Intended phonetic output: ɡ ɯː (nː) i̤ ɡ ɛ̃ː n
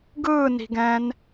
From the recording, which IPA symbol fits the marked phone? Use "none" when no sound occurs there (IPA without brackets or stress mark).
n